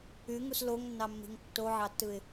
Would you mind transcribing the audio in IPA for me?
yŋus loŋnːɑmːi̤ŋ tːoʕɑtːɯɪ̯

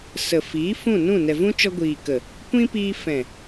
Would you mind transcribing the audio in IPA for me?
sə˨fiː˨˦ fũ˦˨nũ˦˨ nɛ˨vũ˦t͡ʃɔ˧ ɡʷiː˨kə˨ | kʷĩ˦piː˧ fɛ̃˨

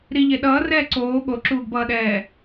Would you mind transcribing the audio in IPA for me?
ɾiʎe ɗʌːrɛː ǀoː ɠoǁuːɡbʌːɗɛː

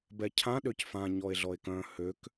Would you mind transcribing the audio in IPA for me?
bɛcʰã ɗøcfã ɲɔe̯ɮɔe̯kœ̃ høk

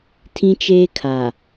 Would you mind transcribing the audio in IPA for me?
tʰĩ˦t͡ʃeː˦kʰa˨

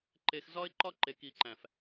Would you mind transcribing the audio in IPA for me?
ǃe˨xzɒ˦ɪ̯ ǃɒ˦ǃe˨ki˨ǃæ̃˨f

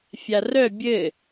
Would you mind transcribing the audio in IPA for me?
fʲarœ bʲɘ

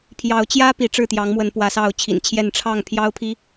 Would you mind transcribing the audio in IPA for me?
pʰjɑ˨˦ʊ̯t͡ɕjä˦ pi˨˦ʈ͡ʂɻ̩˥˨t̪jɑ˨˦ŋmwə˨˦n pwä˨˦sɑ˥˨ʊ̯t͡ɕʰḭ˨˩nt͡ɕʰjɛ˥˨n ʈ͡ʂʰɑ˥˨ŋpʰjɑ˦ʊ̯pʰi˦

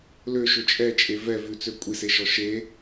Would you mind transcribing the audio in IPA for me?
løʃɵ t͡ʃʼɛt͡ʃʼe vɛ vʉt͡sø kʷʼiseʃɔ ʃe

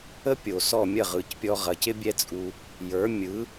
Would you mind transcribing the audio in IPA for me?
ə˥ pʲo˩sɔ˥˩ mʲɐ˥˩ʁɯ˩cpʲɔ˧ ʁɐ˩˥cɪ˥bʲɛ˥t͡sʼu˧ | jə˞˩˥mʲɯ˩˥

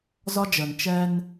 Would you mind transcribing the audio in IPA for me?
zɒ˦d͡ʒəː˨n t͡ʃɛː˦n

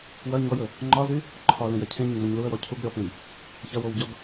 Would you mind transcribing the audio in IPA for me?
wɐ ɲɔjɵ | ŋ͡ǃɒzy | ǃʰɒlẽjɐ cʰẽɲẽŋ͡mɔɲ luə̯wɔ cʰuɡ ɾʲɔpẽj | çɐwowɟɒɡ

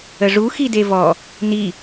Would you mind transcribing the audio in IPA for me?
əʐu xidevɔ | ni

